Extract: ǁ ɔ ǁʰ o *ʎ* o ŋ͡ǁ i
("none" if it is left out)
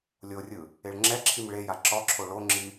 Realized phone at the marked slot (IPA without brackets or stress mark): ɭ